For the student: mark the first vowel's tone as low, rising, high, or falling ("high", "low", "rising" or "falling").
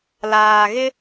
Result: low